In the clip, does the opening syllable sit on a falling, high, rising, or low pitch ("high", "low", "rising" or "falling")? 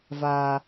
high